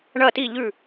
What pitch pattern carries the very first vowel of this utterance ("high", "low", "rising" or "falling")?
falling